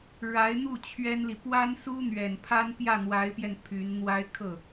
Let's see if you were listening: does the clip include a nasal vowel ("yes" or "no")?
no